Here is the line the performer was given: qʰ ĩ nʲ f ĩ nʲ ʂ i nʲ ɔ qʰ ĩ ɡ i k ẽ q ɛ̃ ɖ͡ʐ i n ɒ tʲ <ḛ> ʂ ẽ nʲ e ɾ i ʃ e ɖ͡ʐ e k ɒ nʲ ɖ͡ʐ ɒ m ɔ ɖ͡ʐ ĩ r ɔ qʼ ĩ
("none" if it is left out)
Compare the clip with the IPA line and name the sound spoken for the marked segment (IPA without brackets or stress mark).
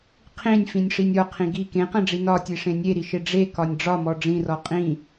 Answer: e